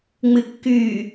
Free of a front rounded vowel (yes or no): no